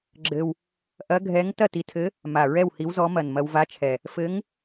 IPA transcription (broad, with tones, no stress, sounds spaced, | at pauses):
ɡ͡ǁ ɘ˧ w | ʔ ɐ˧˥ ɡʱ ɛ˧˥ ŋ t ɐ˥˨ t i˧ tʰ ɘ˧˥ | m a˨˩ ɹ ɛ˥˨ w h i˧˥ w z ɔ˧˥ m ɐ˨˩ n m ɐ˧ w v a˧˥ t͡ʃʰ ɛ˨˩ | f ɘ˧˥ ŋ